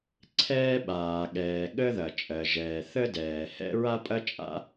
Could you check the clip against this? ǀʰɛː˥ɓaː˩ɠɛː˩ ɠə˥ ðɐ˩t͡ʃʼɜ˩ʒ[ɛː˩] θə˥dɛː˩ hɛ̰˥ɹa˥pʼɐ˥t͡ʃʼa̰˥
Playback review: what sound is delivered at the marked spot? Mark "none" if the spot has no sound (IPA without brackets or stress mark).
ɛː˩